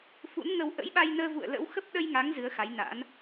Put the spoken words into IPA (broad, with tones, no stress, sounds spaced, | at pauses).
f ṵ˧˥ n ŋ ə˧ w ʔ ə̰˧˥ j ɓ a˧ j n əː˧ v ṵ˧˨ ə̯ l ə̰˧˥ w x ə˦˥ p̚ ɗ ə˧ j ŋ a˨˦ ŋ z ɨ˨˦ ə̯ x a˨˦ j n a̰˧˥ n